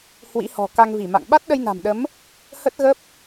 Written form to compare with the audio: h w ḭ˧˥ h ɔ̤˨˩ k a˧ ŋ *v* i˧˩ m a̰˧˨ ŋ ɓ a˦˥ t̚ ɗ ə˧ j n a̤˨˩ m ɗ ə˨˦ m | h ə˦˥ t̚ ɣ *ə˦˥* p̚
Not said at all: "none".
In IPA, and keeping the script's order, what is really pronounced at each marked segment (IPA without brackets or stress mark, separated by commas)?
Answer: v, ə˦˥